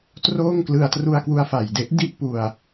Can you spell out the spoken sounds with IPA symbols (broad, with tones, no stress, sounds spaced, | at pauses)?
t r oː˥˩ ŋ k l ɯ˧ a̯ t r u˧ a̯ k w u˧ a̯ f a˨˩ j d e˦˥ ʔ d i˥˩ ʔ p u˧ a̯